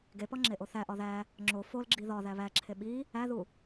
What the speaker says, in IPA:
ɡ e p ɒ ŋ͡ǁ e ʔ o θ æ ʔ ɒ ð æ | ŋ͡ǁ o f o l ɡ͡ǁ i ð ɒ ð æ β æ ǁʰ e ɓ i | æ ð u

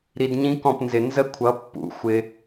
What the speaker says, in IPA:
ɾ i˧ d ɲ ĩ˦ k ɔ̃˦˨ p n z ɪ˨ n z ə˦ kʷʰ ʌ˨˦ pː ṵ˨˦ xʷ ɪ˧

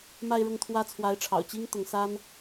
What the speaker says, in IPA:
m a˥˧ ɪ̯ ɻ ʊ˥˩ ŋ t̪ʰ w ä˥ t͡sʰ w a˧˥ ɪ̯ ʈ͡ʂʰ ɑ̰˨˩ ʊ̯ t͡ɕ i˥ ŋ t̪ ʊ˧˥ ŋ s a˥ n

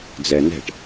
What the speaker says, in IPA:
d͡z ɛ n ɛ̤ ʈ

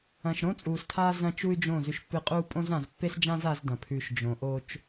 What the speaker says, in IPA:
ɐ̃˨ ʃ ɾ õ˦ t͡sʼ uː˨ s tʰ aː˦ z ɐ̃˦ t͡ʃ u˦ y̯ d͡ʒ õ˦˨ z ʉ˨ ʃ pː ɨ˨ qʼ uː˦ pʼ õ˦ z ã˨ z pː e˦ s d͡ʒ ã˦ z a˦ z d ɐ̃˨ pʰ ʉ˨ ʃ d͡ʒ õ˨ ʔ o˦ t͡ʃ

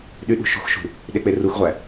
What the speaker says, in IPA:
ɗ y ɗ ṳ ʃ ṳ x ʃ ṳ | ɗ e k͡p e r u x ʁʷ æ

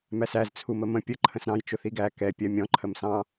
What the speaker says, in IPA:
m æ s æ z t͡sʰ u m ə m ə̃ pʲ ə ǃʰ ə̃ s ɾ ɑ̃ j t͡ʃ ʊ θ i ɡ æ k ɛ pʲ ɜ mʲ ɔ̃ ǃʰ ə m s ɑ̃

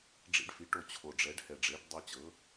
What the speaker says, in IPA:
ɖ͡ʐ ḭ˦ ɖ f i˩˥ ʈ o˦˨ t͡ɕʰ o˨˩ ɖ͡ʐ ɛ˩˥ ɖ h ɛ˨˩ ɖ͡ʐ e˩˥ ɖ dˤ o˦ t͡ɕ ɤ˩˥

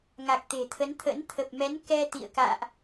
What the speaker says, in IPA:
ŋ a˨˩ k̚ t̪ e̤˨˩ t̪ʰ ə˨˦ n t̪ʰ ə̰˧˥ n t̪ʰ ə˨˩ p̚ m ɛ˨˦ n k ɛ˧ t̪ ḭ˧˨ ə̯ k a̰ː˧˨ ʔ

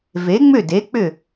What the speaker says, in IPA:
v e˩˥ ŋ͡m ʏ˥˩ d e˩˥ k͡p ʏ˥˩

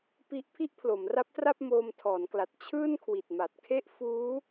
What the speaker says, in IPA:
p i˦˥ ʔ pʰ i˥˩ ʔ pʰ l o˩˦ m r a˦˥ p̚ t r a˥˩ p̚ m oː˧ m tʰ ɔː˩˦ n k l a˨˩ t̚ t͡ɕʰ ɯː˥˩ n kʰ w i˨˩ t̚ m a˨˩ t̚ kʰ e˥˩ ʔ f uː˦˥

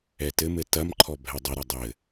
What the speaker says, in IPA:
ɛ t ɘ m ɘ t ɐ m ǃʰ ɔ bʱ ɛ dˤ ʏ ɾ ɐ dˤ ɘ

